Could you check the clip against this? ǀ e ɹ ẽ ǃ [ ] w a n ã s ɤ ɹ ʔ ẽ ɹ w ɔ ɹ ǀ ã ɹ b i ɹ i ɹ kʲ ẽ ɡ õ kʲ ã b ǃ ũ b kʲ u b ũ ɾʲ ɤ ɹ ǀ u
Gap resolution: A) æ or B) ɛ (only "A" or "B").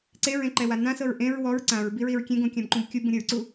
B